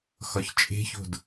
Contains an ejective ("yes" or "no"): yes